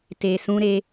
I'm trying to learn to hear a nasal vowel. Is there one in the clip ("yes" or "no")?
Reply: yes